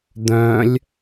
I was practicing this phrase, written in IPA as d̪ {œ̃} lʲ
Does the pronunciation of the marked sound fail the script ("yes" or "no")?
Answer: no